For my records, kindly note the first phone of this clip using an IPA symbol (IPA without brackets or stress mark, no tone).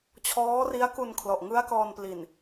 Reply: t͡ɕʰ